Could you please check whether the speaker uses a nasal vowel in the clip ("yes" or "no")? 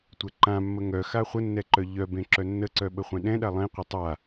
yes